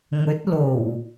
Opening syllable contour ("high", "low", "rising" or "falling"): rising